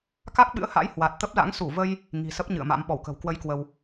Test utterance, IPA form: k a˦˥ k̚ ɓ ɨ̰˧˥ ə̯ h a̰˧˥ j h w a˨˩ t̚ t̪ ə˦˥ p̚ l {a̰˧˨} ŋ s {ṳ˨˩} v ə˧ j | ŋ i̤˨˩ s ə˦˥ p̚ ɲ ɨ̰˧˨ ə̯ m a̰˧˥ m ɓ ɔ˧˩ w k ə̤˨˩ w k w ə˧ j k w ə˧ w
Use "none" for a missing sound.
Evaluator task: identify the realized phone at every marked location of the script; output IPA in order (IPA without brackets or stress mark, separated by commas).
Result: a̰˧˥, u˧˩